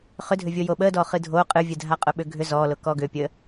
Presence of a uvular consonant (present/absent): present